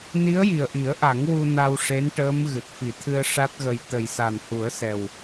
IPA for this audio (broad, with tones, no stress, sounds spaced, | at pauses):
n i˧˥ ə̯ j i˨˩ ə̯ ʔ i˨˩˦ ə̯ ʔ a˨˩˦ ŋ w u˧ n a˧ w ʂ e˧˥ n ʈ əː˧˥ m ɣ ɨ˨˩ t̚ f i˨˩˦ t̪ʰ ɨ˧ ə̯ ʂ a˦˥ t̚ ɣ ə˧ j t̪ ə˨˩ j s a˨˩ n h u˨˩˦ ə̯ s ɛ˨˩ w